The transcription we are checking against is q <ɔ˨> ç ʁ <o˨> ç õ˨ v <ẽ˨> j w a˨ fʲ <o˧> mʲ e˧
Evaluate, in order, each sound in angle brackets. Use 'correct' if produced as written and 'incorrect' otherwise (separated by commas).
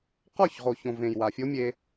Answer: incorrect, correct, correct, incorrect